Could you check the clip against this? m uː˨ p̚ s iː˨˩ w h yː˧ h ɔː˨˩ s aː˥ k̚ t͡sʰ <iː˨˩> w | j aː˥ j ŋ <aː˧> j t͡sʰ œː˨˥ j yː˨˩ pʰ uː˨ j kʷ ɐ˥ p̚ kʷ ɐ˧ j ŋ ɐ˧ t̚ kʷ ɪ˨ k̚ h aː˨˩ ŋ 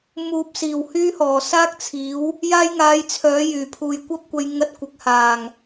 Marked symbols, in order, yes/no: no, yes

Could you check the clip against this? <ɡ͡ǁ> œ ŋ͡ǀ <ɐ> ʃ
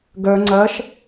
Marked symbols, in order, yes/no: no, yes

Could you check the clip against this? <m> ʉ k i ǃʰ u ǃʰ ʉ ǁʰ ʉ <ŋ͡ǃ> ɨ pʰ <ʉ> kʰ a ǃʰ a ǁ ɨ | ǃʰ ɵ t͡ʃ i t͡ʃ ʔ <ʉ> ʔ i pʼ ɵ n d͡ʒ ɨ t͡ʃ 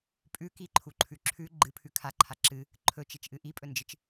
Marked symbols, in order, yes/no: no, no, yes, no

